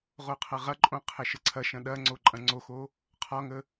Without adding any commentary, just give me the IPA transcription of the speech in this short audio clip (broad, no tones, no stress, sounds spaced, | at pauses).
ʁ o qʰ ɐ ʁ ɐ ǃʼ õ qʰ ɛ ʃ ə ǀʰ ɐ ʃ ɐ̃ ɗ ɐ ŋ͡ǀ o ǃʼ ɐ̃ ŋ͡ǀ o x o | qʰ ɒ ŋ ə